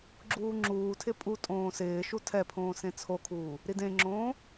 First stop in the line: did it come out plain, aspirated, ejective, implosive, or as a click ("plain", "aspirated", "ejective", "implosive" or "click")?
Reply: click